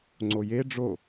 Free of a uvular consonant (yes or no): yes